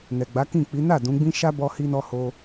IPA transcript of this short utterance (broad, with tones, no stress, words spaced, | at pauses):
nɛ˨ɡ͡ba˨˦ kĩ˦˨k͡pi˨˦ na˦˨ dũ˨˦ɡ͡bĩ˦ ʃa˦bɔ˧hi˧nɔ˧ ho˧